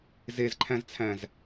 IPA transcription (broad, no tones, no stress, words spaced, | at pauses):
zezǃʰæ̃zt͡sʰæ̃z